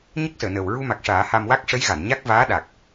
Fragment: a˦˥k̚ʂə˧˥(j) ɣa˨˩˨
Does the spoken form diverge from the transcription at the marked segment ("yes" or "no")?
no